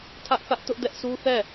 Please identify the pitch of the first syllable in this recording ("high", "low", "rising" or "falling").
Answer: high